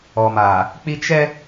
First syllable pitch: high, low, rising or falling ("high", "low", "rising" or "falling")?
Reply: low